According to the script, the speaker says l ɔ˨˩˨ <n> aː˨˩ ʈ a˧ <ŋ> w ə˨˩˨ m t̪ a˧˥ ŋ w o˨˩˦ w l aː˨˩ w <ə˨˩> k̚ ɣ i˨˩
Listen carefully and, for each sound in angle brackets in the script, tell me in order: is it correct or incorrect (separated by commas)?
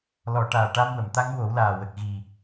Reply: incorrect, incorrect, correct